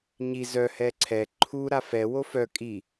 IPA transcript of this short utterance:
ɲi zœ hɛǀʰɛ ǃʰu ɾafɛ wofœ kʼi

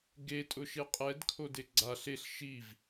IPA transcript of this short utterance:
ɡetʼʊʃe qʼɛdkʰode ɡ͡ǀaɬ eɬ ʃiv

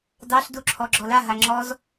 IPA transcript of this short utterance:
dɑɬduǁʰɔ ɡ͡ǁɔlaɦa ŋ͡ǁɔz

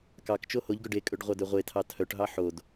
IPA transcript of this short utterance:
kɑkt͡ʃo hoʎɡœɖ ekʼɵɖ ʁʷɑdøʁʷetʰɑ tʰœʈɦɑ ħod

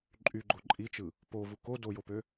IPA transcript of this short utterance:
ǃʼyɡ͡ǃo ǃʼit͡ʃɯ | povu ko dojopø

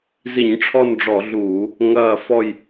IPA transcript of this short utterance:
zi˧˩˧ɲʈ͡ʂʰɔ˦˨nɖ͡ʐɔ˧˩˧ ɮuː˧˩˧ | ŋɐː˦˨ fɔ˦˨j

